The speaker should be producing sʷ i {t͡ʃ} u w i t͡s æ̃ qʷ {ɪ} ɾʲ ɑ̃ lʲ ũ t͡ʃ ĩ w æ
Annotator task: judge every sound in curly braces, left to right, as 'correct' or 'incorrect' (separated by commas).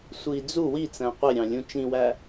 incorrect, correct